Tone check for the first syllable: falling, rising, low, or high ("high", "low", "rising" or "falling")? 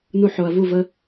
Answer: high